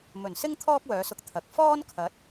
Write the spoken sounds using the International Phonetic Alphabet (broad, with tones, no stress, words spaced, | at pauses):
mɵ˨˩nsɪ˥ŋ t̪ʰɔː˥k̚wœː˨˧sʊ˧k̚ t̪ʰɐ˨k̚ fɔː˥nkʰɐ˨˥t̚